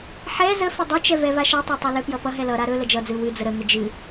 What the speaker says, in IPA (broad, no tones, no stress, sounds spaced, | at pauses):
ħ ɛ z ə f ə dˤ ɛ t͡ʃ ɛ v ɛ v a ʃ ʌ tˤ a tˤ ɵ l ɵ p j ʌ p ʌ ɦ ɛ l ʌ ɾ a ɾ ɵ l ə d͡ʒ ʌ d͡z ɨ w ɨ d͡z ə ɾ ə ŋ ə d͡ʒ ɨ